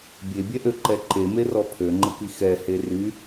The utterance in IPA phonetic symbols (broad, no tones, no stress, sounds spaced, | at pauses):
bʲ e bʲ ɛ ʔ ø ǃ ɛ ǃ e m e r ɔ pʰ ø ŋ͡ǃ ə k i x ɛ h e r y